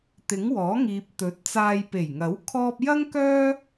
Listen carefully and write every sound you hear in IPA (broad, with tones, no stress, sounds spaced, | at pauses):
t̪ ɪ˨˥ ŋ w ɔː˨˥ ŋ iː˨ p̚ t̪ ɵ˨˥ t̚ t͡s aː˧ j p e˨˩ j ŋ ɐ˨˥ w kʰ ɔː˧ p̚ j ɐ˥ ŋ k œː˥